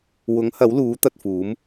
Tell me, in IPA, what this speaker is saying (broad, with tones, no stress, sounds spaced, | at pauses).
w ʊ˨˥ ŋ h ɐ˨˥ w l uː˨˥ t̪ ɐ˧ t̚ f uː˨˥ m